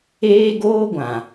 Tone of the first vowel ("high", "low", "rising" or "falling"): high